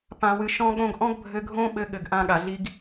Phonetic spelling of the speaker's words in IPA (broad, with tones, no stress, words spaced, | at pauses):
pã˨wɨ˨ ʃɔ̃˧ɠõ˧ɡ ʔɔ̃˦ɡbʱɘ˧ɡʱõ˦ɓɘ˧ ɠɘ˨ɡʔã˧ ɠa˨ɮi˧ɡ